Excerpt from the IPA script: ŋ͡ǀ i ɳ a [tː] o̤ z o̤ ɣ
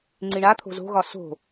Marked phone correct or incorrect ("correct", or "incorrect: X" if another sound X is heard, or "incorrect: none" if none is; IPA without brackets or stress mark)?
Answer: incorrect: t̪ʰ